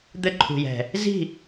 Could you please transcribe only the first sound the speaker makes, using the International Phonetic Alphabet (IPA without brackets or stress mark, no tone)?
d̪